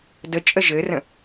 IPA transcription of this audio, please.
də t͡ʃʼəʒɘrə̃

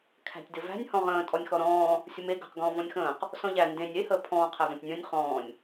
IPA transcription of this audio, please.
kʰæ̤tʲdɘvæ̤nʲ hɔ̃ʁə̃ː tʼɔnʲxɔɾɔ̃ː | sʲəme ɡə̤q ɡɔ̃ːvɔ̃nʲxə̃ːq | sɔ̃ʎæ ndẽnʲ e həːpʰɔ̃ː qʰævɔ̃tʲnʲə̃ːnʲ χɔ̃ːnʲ

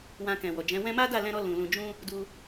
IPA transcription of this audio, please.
wã˧kɛ̃˨wɔ˨d͡ʒɛ̃˨˦ wɛ̃˧ma˦da˦˨ lɛ̃˧ɾɔ˧ lũ˨lũ˨d͡ʒũ˧ | du˧

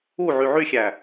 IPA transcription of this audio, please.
u ʕyʕyxʲæ

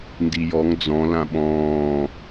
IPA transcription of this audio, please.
ndijɔŋ d͡zɔ̃ lãɓɔ̃ː

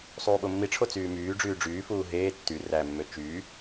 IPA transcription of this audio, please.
sˤuːɓomːiʈ͡ʂʰo t͡syːmyːɖ͡ʐyː ɖ͡ʐyːfuː ɦeː tːy ræmːø t͡ʃyː

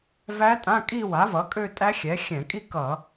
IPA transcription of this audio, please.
væ˦˥tʼã˧˥˧ kʼi˥˧wa˩˥vʌ˩˥ kʼø˥˧tʼæ˦˥xʲɛ˩˥xʲɛ̃˧˩˧ kʼi˥˧kʌ˧˩˧

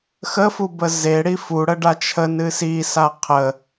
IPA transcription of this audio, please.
xəfubə zeɽi fuɽəɖa t͡ʃʰənɨ sisa qʰə

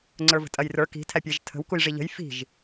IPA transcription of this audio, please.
ŋ͡ǀə˞və̤tʼɐjrə˞ ki̤ tʰæpʲæʒtʰə̤w kujʐiʎə̤j fi̤ʒ

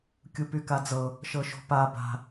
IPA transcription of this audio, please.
kʲupykad͡zɤ | ʃɤʃo̤pa ba̤

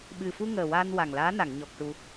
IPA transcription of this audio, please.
ɓɨ˨˩fu˧ ŋəː˨˩waː˧n wa˨˩ŋlaː˧˥na˨˩˨ŋ ɲɔ˨˩k̚ ʈu˧

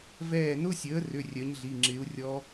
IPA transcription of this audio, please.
vɛː˧˩nʊ˧˥˧sʲəː˩˥rʏ˩˧˩ rʲœ˩˥ɲɮi˩˧˩ ŋ͡ǁɪ˩˥u̯ rʲɔ˧˥

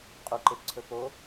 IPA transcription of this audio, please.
qʼuǃepǀʰɵ po

